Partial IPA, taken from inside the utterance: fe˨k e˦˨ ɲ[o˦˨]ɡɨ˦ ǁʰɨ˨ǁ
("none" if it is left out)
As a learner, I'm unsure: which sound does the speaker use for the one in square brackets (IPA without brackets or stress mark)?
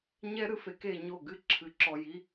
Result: o˦˨